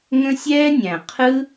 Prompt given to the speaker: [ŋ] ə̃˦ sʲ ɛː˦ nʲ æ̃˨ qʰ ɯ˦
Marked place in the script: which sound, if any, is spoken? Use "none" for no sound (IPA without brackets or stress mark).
ŋ